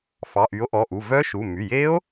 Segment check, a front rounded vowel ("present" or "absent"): present